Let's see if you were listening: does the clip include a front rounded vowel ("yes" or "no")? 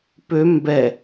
yes